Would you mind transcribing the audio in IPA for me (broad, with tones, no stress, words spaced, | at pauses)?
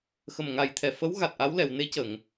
xə˨˩mŋa˨˩jt̪ʰɛ˨˩ fə˧˥w ɣa˨˩t̚ʔa˧˥w lɛ˨˩˨wne˧˥cə˨˩˨ŋ